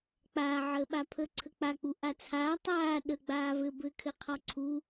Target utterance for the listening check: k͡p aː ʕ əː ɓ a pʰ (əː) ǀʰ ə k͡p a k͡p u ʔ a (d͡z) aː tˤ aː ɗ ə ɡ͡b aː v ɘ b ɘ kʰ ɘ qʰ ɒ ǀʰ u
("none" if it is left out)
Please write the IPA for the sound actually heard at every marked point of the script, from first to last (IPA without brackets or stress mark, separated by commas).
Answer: əː, t͡sʰ